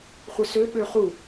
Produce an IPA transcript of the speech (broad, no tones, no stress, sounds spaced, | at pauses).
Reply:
χʷ ɘ s ø ɓ ø χ u